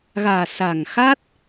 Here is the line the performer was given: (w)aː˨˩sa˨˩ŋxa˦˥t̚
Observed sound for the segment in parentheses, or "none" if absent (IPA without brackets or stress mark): ɣ